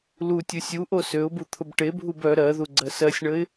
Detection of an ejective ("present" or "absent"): absent